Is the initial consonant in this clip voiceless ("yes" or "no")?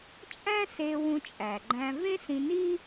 yes